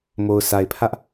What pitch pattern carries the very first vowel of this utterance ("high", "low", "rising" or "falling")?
low